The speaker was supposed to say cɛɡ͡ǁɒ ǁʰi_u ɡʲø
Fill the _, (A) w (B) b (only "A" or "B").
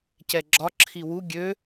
A